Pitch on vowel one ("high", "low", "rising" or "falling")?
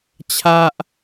high